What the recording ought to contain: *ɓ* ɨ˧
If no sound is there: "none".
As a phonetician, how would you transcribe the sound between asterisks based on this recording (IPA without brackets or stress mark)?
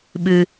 ɓ